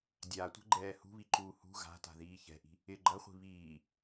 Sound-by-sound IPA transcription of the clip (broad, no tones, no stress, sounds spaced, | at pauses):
dʲ a tʷ ɛ̤ ɡ͡ǃ ɛː h ṳ β i ǃ uː h ṳ ɣ a̤ t a̤ ð iː ç ɛ̤ ʔ i̤ | ɪ ɡ͡ǃ ɐ χʷ i̤ β iː